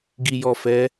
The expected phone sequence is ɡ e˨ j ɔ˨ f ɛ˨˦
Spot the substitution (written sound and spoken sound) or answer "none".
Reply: e˨ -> i˨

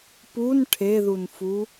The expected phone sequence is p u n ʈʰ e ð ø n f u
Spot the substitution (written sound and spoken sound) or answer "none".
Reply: ø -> u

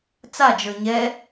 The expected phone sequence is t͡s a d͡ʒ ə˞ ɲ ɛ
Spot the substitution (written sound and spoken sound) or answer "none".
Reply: none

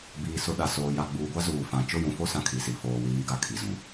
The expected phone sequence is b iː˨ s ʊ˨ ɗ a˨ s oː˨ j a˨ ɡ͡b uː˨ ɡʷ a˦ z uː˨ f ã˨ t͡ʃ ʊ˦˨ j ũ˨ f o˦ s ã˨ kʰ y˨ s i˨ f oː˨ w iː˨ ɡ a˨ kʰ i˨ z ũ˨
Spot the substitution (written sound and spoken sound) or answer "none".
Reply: y˨ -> i˨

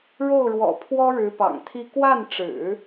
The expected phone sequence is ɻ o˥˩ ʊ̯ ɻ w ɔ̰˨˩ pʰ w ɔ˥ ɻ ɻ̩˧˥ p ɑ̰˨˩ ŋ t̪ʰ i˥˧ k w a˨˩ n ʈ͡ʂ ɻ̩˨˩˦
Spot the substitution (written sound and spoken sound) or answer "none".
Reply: a˨˩ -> a˥˩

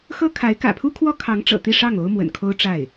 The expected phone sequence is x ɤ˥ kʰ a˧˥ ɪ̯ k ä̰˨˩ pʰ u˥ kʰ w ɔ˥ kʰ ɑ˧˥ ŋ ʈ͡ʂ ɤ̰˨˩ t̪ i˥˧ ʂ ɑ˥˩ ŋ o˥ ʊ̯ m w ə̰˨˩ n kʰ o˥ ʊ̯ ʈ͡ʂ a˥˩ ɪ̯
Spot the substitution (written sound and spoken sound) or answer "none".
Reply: none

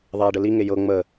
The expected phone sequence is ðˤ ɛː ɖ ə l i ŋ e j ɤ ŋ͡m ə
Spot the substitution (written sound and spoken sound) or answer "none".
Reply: none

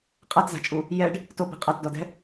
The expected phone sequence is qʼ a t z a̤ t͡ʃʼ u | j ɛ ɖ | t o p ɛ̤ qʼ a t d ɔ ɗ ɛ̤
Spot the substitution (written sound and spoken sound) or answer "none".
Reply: ɗ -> d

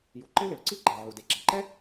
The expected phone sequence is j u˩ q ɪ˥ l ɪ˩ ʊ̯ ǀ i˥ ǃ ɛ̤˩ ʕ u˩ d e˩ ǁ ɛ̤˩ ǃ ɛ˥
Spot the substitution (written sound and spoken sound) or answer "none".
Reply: q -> ǃ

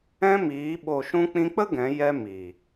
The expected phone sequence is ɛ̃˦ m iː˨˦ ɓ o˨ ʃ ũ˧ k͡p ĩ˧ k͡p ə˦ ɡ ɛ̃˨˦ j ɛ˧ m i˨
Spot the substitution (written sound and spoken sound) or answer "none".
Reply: none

